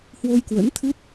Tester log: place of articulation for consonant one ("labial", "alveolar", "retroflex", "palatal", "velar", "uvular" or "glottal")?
glottal